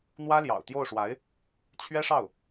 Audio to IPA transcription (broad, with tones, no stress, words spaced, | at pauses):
n̪wä˥ljɑ̰˨˩ʊ̯t̪jo˥˩ʊ̯ʂwa˧˥ɪ̯ | t͡ɕʰɥɛ˥ʂɑ˥˩ʊ̯